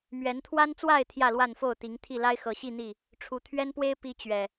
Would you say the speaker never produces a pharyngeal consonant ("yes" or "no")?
yes